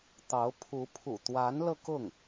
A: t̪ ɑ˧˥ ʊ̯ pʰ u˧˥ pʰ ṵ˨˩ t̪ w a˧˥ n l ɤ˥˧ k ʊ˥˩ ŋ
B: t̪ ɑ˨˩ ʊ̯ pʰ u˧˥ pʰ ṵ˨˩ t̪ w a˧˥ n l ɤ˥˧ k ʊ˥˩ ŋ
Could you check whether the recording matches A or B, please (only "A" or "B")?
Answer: A